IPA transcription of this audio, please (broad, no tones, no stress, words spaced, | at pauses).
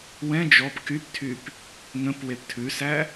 wɛ̃ d͡ʒɔp kyptʰyp | ŋə̃p weptʰʉsæ